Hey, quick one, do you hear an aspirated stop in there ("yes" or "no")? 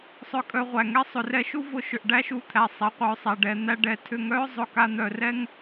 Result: yes